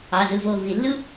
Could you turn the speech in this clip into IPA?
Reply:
ɑ˩˧˩ z ɯ˧˩ v o˧˩ v i˧˩˧ lː ɯ˦

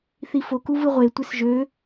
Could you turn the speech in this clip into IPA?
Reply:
θ i f o k u v ɯ ʁʷ e tʷ e s ʒ ø

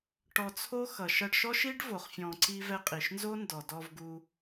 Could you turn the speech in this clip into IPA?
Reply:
ʈ ɔ˧ t͡sʰ o˦ x ʌ˨ ʃ ʌ˧ ɖ ʃ ɔ˦ ʃ i˦ ɖ v o˨ χ fʲ ɔ̃˨ ǀ i˧ v ɛ˧ qʼ i˨ ʃ n z o˦ n d ɔ˨ d ɔ˧ v ɡ u˧

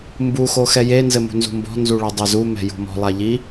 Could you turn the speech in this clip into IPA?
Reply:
m b u x o x ɛ j e n z ɘ m ṳ n z ṳ m b ɔ̤ n z u ɭ ɔ dˤ ɛ z u m ɛ̤ j ṳ m ɔ̤ lˠ a ʎ i

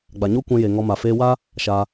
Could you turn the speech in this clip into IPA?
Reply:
ɡ͡b a˨ ɲ o˦ kʷ ɛ̃˧ j e˨ ŋ ɔ˧ m a˨ f eː˧ w a˦ | ʃ a˧

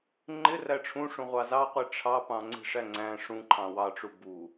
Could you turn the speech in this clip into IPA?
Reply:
ŋ͡ǃ ɪ r æ ʈ͡ʂʰ ũ ʂ ũ ʁʷ ɑ z ɑ qʷ i ʈ͡ʂʰ ɑ p ɑ̃ ŋ͡ǀ i̤ ʂ æ ŋ͡ǀ æ̃ ʂ ũ ǃʰ ɑ̃ w ɑ ʈ͡ʂ u b u

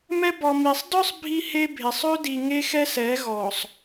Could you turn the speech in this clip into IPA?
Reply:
m ɛ˦ b ɔ˨ m i˨ sˤ d œ˦ sˤ bʱ i˦ h e˦ bʱ e˨ sˤ ø˦ d i˨ ŋ e˦ x ɛ˦ s ɛ˨˦ ɣ ɔ˨ sˤ

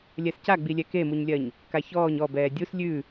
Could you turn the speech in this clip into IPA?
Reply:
lʲ ɛ s c a ɡ͡b i lʲ ɛ k e m u ɲ lʲ ɜ ɲ | k a ç ɔː ɲ ɔ b ɛː dʲ u s lʲ ʉ

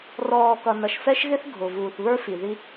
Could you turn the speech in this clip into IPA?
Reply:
r ɔː˨ k ʌ˨ n ʌ˨ ʃ f ɛ˦ ʃ ɣ ɪ˦ θ ɡʱ ʊ˨ v uː˨ θ β ə˞˦ f i˨ ð i˦

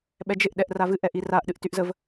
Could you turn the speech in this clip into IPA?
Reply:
ɓ ɛ d͡ʒ ɪ ʔ ɗ ɛ ʔ r a v ɨ ʔ ɛ ʔ i r a ʔ ɗ ɨ ʔ t y ʔ z ə v

